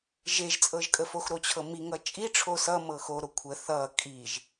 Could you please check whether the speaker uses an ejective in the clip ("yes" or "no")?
yes